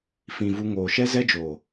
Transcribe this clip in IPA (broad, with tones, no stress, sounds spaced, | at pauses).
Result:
f ĩ˨ v u˧ ŋ oː˨ ʃ ɛ˦ z ɛ˦ d͡ʒ oː˨